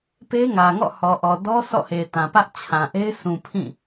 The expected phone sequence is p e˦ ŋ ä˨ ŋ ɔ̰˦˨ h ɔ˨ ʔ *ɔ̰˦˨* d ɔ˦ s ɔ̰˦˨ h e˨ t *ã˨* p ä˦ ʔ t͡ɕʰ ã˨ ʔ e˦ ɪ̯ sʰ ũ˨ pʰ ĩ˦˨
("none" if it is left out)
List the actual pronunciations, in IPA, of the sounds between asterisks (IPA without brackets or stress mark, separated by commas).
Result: ɔ˨, ã˨